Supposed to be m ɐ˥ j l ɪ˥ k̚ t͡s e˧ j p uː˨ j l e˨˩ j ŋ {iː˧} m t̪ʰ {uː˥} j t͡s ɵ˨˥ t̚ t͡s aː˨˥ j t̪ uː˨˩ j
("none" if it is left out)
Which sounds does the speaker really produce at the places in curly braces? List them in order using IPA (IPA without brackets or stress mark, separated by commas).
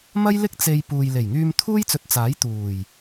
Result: yː˧, uː˥